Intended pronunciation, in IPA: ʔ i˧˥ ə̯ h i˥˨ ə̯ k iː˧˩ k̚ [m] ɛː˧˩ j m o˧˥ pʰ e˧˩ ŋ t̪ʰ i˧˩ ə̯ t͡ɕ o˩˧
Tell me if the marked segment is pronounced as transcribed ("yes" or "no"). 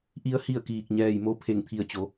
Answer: no